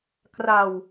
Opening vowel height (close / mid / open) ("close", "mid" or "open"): open